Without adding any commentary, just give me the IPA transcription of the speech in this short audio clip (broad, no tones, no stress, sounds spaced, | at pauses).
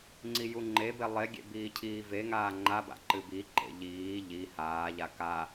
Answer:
ŋ͡ǀ i j u ŋ͡ǃ e b e lˠ e ɡʲ ḛ b iː cʰ iː v e ŋ aː ŋ͡ǃ a b a̰ ǃ ɨ b i ǃ ḛ ʎ iː ʎ i h aː ʎ a k a